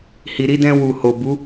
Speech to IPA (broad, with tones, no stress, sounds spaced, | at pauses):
h i˨ ɾ i˧ d ɛ̃˧ w u˨ h o˨ b u˨˦